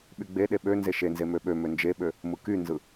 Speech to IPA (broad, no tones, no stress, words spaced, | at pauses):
ɓyɡ͡beɗe ɓø nzeʃenze møɓømø nd͡ʒeɓø | mɯkynzɯ